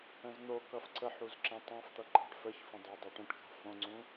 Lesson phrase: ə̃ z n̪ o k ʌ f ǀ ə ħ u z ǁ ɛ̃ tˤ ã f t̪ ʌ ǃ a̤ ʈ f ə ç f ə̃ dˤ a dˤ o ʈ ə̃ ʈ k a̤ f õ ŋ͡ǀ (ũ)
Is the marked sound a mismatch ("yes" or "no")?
no